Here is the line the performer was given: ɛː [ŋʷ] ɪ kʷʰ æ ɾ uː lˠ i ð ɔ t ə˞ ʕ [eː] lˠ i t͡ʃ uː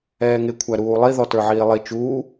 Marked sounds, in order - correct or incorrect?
incorrect: ŋ, incorrect: iː

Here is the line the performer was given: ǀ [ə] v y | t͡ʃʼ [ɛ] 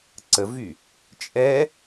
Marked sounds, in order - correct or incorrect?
correct, correct

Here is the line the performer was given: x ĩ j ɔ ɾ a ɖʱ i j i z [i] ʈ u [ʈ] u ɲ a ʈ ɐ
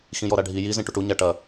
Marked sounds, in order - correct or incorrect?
incorrect: ĩ, correct

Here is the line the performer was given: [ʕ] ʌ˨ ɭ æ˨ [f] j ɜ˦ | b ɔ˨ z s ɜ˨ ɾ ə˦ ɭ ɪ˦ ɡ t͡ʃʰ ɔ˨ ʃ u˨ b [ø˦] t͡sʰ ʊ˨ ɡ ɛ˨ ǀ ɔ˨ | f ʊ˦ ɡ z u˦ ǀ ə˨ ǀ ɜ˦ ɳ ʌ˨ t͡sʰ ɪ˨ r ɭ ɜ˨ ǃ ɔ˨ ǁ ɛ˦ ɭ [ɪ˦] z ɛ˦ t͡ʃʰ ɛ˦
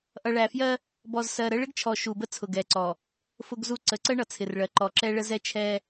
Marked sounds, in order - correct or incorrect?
incorrect: ʔ, correct, incorrect: ə˦, incorrect: ə˦

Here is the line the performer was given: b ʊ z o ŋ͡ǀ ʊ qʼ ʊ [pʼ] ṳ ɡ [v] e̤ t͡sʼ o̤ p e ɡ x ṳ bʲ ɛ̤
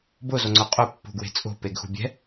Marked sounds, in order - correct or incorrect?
incorrect: pː, incorrect: w

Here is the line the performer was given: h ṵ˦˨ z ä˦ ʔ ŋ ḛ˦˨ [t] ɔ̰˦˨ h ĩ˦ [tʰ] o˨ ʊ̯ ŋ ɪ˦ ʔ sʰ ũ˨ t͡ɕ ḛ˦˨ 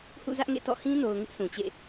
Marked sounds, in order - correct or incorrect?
correct, incorrect: n

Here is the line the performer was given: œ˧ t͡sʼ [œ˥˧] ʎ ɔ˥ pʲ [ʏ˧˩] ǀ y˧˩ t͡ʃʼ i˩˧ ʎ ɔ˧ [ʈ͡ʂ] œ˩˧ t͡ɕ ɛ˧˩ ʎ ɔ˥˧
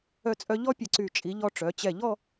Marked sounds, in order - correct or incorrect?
incorrect: œ˧, incorrect: ə˧˩, correct

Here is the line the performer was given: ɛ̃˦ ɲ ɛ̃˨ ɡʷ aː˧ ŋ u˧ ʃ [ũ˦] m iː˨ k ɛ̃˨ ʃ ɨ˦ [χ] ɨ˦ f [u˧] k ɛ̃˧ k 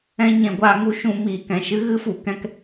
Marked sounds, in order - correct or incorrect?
incorrect: ũ˧, incorrect: ɣ, incorrect: u˨

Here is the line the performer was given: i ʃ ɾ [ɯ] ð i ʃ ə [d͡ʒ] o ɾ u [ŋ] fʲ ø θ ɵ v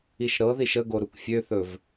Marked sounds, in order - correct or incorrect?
incorrect: ɤ, incorrect: ɡ, incorrect: k

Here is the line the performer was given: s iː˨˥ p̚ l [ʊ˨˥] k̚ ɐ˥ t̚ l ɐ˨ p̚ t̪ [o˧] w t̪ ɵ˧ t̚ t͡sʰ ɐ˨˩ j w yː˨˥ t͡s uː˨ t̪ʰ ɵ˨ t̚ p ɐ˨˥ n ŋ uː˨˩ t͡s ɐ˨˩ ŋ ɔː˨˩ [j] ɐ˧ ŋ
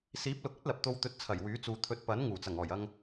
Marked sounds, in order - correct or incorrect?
correct, correct, correct

